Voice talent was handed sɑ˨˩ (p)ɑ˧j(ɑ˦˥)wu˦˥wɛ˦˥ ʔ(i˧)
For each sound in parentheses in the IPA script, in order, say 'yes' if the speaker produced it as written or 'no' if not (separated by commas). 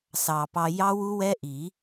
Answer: yes, yes, no